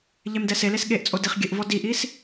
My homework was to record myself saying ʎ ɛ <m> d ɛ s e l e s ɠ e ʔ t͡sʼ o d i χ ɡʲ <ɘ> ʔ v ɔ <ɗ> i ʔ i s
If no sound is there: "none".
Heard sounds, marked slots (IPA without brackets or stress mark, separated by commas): m, ɘ, d